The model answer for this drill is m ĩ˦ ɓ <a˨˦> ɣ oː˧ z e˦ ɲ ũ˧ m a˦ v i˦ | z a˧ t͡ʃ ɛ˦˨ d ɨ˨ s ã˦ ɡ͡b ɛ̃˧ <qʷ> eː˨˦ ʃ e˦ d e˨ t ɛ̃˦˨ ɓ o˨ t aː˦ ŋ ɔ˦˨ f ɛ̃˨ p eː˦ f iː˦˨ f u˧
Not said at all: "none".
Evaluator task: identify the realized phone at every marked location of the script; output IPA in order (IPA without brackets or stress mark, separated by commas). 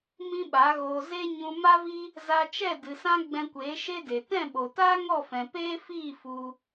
a˨˦, kʷ